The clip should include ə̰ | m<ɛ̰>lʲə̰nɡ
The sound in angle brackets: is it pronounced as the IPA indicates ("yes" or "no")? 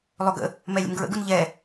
no